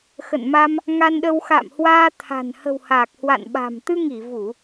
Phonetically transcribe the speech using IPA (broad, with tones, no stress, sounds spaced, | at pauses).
x ə̰˧˨ n m a˧ m | ŋ a˧ n ɗ ə˧ w x a̰ː˧˨ m h w aː˧ t̪ʰ a̤˨˩ n h ə̤˨˩ w h aː˨˩ k̚ h w a̰˧˨ n ɓ a̤˨˩ m t̪ ɨ˧ ŋ i˧˩ v u˧˩˨